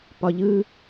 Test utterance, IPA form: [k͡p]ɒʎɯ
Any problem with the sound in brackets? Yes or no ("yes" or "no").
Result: yes